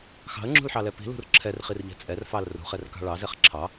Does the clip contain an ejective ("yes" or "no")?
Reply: yes